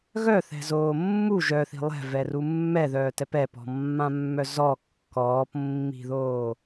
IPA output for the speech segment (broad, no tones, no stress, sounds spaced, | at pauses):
ɣ œ θ ɛ̤ z oː mː u ʒ œ θ i̤ lˠ ɛ̤ v ɛ r u mː ɛ ð œː t ɛ p ɛ p ɔ̤ mː ã mː œ z ɔ kː ɔː p mː i̤ ð oː